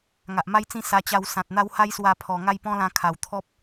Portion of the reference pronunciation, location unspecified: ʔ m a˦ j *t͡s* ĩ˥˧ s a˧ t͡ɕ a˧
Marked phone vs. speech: correct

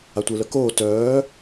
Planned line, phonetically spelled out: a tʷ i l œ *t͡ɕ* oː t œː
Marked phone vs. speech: incorrect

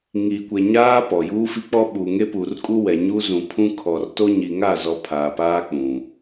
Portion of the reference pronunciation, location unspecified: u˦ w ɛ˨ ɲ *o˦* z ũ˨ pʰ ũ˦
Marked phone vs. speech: incorrect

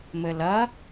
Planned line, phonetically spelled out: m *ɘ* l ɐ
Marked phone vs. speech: correct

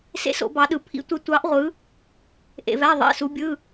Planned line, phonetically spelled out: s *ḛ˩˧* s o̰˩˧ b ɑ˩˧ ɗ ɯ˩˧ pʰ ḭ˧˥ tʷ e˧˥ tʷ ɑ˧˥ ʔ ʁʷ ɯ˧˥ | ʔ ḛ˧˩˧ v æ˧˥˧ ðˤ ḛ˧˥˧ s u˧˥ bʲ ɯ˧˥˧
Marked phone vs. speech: incorrect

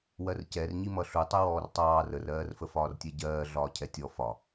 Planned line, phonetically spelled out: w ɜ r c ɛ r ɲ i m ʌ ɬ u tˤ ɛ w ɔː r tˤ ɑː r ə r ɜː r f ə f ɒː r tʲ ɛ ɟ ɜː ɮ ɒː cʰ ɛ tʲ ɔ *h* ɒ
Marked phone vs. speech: incorrect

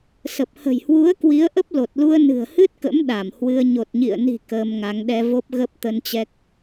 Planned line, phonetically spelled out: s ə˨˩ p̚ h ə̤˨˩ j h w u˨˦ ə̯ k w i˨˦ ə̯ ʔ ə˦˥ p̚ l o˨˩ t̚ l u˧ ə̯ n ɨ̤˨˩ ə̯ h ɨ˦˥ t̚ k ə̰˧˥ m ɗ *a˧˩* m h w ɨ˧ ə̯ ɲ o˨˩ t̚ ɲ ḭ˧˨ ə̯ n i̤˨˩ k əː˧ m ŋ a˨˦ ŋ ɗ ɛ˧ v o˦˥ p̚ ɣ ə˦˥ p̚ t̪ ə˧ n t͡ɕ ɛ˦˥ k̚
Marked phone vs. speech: correct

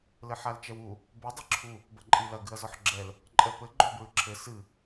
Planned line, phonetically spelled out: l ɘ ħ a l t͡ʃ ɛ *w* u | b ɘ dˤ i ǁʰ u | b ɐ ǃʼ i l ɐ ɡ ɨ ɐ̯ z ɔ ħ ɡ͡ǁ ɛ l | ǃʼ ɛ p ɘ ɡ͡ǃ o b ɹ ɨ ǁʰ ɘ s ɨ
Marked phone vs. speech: correct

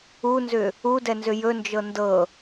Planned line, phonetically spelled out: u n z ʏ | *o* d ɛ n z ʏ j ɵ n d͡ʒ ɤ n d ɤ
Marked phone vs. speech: incorrect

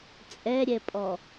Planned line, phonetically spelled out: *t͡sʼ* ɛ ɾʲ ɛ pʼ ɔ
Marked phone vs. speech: correct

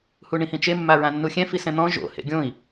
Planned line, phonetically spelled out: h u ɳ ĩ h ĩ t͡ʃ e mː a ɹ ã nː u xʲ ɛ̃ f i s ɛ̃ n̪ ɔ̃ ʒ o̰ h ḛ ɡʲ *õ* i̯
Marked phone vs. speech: correct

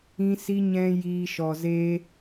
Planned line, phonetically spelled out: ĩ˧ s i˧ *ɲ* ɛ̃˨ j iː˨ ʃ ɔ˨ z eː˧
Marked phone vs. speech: correct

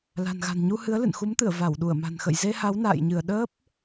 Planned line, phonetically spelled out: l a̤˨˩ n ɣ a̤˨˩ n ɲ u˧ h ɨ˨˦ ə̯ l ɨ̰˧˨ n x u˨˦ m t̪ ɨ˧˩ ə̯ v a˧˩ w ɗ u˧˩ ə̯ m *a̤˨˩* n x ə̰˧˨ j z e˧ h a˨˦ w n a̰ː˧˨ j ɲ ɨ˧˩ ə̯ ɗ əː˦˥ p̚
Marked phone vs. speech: correct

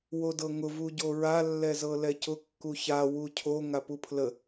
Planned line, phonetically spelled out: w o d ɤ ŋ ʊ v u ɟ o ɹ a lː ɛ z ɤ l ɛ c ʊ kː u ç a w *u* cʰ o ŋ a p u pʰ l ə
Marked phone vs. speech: correct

